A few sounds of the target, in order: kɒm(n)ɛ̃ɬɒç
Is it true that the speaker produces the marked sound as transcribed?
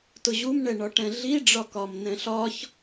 yes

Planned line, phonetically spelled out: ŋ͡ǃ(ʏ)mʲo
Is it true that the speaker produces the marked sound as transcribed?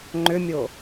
yes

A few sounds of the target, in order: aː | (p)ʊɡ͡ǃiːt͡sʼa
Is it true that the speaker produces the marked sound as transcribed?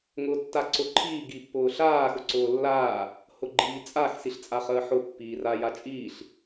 no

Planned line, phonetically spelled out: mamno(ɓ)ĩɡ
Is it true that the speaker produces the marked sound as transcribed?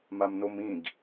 no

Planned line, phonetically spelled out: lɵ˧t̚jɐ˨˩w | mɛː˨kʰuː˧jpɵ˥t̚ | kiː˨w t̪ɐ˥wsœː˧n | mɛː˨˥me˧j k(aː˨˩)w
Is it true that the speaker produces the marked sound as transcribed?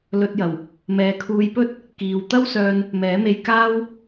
no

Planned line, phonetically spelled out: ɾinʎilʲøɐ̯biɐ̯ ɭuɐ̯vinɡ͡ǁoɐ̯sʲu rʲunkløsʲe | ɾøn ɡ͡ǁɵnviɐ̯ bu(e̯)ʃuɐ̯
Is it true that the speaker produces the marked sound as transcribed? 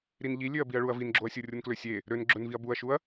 no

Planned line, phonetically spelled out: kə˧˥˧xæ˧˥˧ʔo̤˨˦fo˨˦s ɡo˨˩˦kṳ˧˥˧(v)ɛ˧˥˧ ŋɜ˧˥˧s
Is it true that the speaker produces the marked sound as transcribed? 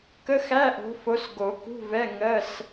yes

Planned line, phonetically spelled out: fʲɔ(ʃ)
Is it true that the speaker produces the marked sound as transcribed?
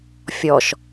yes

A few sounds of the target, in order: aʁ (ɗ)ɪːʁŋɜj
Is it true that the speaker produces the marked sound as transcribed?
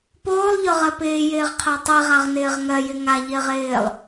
no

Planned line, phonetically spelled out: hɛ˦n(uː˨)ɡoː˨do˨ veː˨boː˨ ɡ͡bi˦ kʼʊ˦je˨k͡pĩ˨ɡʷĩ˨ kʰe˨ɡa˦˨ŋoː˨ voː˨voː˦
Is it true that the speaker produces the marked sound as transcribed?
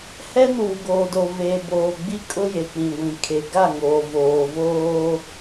yes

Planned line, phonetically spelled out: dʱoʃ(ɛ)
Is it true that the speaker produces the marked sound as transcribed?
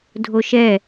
yes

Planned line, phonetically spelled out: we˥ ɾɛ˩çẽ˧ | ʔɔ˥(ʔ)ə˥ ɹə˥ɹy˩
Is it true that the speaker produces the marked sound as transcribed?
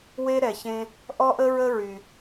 yes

